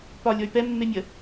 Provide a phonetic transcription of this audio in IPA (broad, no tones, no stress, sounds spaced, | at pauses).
p ɒ lʲ ɔ y̯ p ɛ mː e mʲ ə